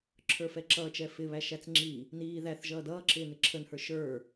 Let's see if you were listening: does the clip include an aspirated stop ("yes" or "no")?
yes